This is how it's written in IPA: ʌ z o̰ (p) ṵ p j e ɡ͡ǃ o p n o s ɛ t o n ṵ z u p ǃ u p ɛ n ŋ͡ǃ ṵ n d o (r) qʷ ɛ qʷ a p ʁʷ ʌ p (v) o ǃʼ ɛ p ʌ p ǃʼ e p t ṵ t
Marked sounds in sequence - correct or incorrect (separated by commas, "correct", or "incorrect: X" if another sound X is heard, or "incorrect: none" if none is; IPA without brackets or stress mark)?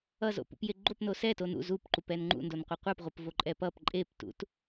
correct, incorrect: n, correct